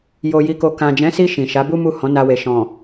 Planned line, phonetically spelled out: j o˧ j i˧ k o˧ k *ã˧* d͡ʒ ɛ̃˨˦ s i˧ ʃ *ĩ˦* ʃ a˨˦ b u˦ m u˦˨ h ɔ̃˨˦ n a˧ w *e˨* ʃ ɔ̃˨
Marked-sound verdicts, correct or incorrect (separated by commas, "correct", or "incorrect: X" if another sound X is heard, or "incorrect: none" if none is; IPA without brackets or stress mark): incorrect: ã˨, incorrect: ĩ˨, correct